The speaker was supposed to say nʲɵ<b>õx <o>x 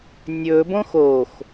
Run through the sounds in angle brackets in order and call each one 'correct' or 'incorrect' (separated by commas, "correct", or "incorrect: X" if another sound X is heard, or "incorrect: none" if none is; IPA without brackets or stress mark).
correct, correct